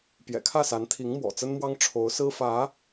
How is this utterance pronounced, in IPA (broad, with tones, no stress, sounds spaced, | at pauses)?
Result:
p j ɛ̰˨˩ kʰ ä˥˩ s a˧˥ n t̪ʰ i˧˥ ŋ m w ɔ̰˨˩ t͡s ə˥ n m w ɑ˥ ŋ ʈ͡ʂʰ o˧˥ ʊ̯ s ɹ̩˥ f ä˧˥